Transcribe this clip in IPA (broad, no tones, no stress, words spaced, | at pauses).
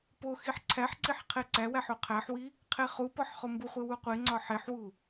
poxiħ ǀʰæħ ǀiħqʰeǀæwæħ oqʰæħwi | qʰeχupɒħ χombuχʷe wuqʷeŋ͡ǀɒ ħeħwu